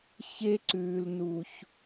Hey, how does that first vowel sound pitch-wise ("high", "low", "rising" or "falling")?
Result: high